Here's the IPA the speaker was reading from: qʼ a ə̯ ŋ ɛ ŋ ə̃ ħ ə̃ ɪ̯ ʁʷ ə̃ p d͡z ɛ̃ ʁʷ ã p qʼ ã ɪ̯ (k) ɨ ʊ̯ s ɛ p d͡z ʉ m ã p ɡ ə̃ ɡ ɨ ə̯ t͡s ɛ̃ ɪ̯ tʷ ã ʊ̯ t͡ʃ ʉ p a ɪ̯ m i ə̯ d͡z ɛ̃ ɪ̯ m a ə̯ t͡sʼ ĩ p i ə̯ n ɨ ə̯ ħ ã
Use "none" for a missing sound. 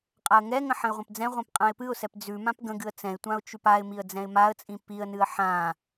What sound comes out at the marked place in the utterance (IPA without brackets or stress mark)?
p